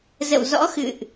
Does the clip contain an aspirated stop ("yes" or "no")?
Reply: no